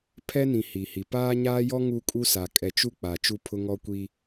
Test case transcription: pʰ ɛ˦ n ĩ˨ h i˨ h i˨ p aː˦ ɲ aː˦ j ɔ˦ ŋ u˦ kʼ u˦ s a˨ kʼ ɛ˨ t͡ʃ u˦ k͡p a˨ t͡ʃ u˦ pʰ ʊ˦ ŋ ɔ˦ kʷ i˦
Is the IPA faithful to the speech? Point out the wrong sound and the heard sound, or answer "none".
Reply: none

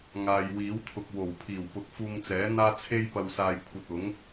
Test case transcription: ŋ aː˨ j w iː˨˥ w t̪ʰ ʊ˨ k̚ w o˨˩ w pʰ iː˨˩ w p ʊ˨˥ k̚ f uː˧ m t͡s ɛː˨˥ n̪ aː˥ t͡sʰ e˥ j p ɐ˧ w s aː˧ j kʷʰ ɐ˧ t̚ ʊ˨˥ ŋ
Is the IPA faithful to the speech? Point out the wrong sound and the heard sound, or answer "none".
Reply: m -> ŋ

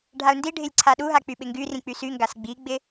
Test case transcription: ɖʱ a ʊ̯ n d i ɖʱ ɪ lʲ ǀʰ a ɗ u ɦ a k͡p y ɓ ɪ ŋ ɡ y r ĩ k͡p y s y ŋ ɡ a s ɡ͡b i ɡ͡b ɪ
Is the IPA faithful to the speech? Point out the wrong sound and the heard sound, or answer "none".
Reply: none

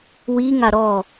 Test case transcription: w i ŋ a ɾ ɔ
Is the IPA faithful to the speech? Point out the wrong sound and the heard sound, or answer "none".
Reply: none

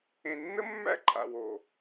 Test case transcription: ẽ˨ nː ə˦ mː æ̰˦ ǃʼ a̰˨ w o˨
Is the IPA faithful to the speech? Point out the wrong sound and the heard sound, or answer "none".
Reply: none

